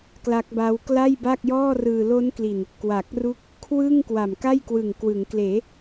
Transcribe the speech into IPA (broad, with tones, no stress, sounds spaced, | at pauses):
k l a˦˥ k̚ b aː˦˥ w k l a˥˩ j b a˥˩ k̚ j ɔː˥˩ r ɯː˧ l o˦˥ n k l i˨˩ n | k w a˨˩ k̚ r u˥˩ k̚ | kʰ w ɯ˥˩ ŋ k w a˨˩ m k a˥˩ j k w ɯ˨˩ ŋ k w ɯ˩˦ ŋ k l eː˩˦